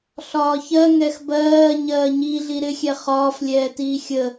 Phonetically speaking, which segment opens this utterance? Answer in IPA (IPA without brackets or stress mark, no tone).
ɬ